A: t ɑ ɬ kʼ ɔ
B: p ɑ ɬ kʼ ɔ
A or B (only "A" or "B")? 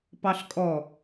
B